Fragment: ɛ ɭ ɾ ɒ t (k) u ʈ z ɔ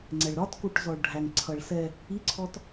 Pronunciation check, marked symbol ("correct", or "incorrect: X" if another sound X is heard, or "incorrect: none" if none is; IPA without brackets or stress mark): correct